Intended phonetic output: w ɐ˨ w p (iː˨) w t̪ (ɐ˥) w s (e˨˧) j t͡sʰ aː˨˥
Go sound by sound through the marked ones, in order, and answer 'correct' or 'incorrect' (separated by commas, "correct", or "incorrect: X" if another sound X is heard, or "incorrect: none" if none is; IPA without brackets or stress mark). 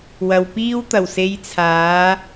incorrect: iː˥, incorrect: ɐ˨˩, correct